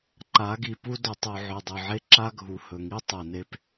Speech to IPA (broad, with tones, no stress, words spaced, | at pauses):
ǃa˨˦ɡi˨pu˦ dɵ˨tˤu˨ ʕɵ˨dˤɵ˨ʕe˦ ǁa˦ɡʱu˨hɵ˨ŋi˦ tˤe˨ne˦p